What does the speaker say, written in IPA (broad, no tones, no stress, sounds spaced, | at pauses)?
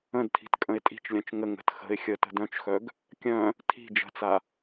ə̃ d tʰ i̤ t kʼ ə̃ ɪ̯ tʼ i̤ t͡ʃ lʲ œ̃ t͡ʃ ŋ ə ŋ ə̤ t x ə̤ ɪ̯ xʲ ə t ə̤ d œ̃ t͡ʃ x œ ɡ | kʲ œ̃ | tʰ i̤ d͡ʒ ə̤ t͡s a